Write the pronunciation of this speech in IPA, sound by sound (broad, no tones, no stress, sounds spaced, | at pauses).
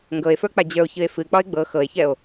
ŋ ɡ ɤ e̯ f ə˞ k͡p a d͡ʑ ə˞ o̯ ç ɨ e̯ f ɨ k͡p ɒ e̯ ɡ͡b ɤ x ɤ e̯ ç ɛ o̯